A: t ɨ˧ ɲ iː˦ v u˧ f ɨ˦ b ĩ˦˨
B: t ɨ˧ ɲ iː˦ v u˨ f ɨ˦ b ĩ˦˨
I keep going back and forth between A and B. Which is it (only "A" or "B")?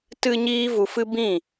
A